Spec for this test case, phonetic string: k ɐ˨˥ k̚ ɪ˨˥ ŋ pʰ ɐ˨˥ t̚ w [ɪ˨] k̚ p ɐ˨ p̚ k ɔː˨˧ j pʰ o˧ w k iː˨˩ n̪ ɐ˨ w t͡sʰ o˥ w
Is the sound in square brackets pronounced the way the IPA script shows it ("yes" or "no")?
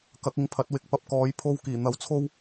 yes